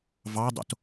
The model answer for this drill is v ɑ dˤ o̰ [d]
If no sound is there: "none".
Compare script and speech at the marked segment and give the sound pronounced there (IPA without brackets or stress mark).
t